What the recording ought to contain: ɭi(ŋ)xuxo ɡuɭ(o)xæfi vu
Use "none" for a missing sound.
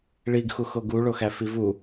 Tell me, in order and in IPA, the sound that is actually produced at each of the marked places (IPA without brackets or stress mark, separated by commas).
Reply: ɡ, o